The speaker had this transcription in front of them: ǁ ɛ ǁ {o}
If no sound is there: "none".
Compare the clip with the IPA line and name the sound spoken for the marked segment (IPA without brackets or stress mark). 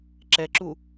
u